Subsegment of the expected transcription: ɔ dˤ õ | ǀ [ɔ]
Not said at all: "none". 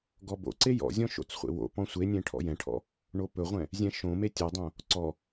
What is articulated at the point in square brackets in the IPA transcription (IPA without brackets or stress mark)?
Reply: ɔ